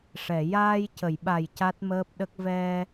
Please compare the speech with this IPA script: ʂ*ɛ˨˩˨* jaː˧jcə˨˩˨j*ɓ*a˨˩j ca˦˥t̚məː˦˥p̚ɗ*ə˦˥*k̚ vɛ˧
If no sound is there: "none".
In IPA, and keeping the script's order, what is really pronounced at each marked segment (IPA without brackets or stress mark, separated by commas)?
ɛ˨˩˨, ɓ, ə˦˥